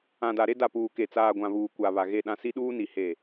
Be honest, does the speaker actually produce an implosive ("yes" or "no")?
yes